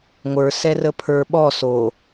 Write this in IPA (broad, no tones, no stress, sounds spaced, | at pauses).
ŋʷ ə˞ s ɛ r ə pʰ ə˞ ɓ ɔ s o